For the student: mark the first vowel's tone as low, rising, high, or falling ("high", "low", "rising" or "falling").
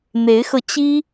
rising